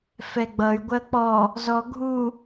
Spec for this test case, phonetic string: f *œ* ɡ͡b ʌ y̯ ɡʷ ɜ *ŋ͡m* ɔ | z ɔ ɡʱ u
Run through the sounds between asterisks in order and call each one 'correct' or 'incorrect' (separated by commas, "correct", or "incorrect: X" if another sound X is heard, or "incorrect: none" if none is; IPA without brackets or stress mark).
incorrect: ɛ, incorrect: k͡p